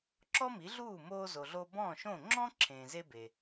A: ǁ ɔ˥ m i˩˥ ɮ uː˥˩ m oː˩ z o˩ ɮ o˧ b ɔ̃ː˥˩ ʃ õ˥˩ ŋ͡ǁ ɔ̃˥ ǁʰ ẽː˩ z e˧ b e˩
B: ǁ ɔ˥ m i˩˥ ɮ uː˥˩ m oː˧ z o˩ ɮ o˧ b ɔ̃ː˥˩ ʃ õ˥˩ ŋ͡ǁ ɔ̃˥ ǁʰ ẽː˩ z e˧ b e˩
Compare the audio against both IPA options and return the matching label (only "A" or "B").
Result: B